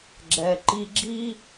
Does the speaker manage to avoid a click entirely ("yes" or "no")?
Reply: no